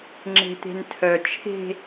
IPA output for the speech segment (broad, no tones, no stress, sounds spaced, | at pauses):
ŋ͡ǁ e̤ t̪ e̤ n tʰ œ t͡ʃʰ e̤